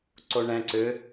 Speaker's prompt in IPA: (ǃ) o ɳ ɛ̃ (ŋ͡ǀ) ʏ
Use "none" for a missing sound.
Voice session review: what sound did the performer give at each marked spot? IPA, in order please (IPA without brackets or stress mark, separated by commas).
ǀ, ǀ